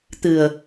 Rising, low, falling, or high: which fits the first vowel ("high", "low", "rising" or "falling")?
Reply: low